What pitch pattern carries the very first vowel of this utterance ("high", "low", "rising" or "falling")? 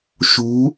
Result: rising